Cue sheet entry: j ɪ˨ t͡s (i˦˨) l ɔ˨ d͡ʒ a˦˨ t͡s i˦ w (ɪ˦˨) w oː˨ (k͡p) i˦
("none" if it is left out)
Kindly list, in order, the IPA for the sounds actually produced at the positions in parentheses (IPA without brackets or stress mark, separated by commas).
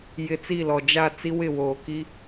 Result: i˦˨, ɪ˦˨, k